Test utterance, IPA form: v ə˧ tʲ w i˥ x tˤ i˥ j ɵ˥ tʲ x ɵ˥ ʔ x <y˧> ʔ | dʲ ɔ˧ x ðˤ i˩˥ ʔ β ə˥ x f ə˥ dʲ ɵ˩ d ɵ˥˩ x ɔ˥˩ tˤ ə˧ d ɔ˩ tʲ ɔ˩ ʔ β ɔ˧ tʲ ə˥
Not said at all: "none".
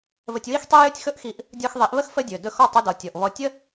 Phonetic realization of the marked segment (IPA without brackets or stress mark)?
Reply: i˧